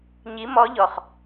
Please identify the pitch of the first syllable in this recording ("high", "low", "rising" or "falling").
rising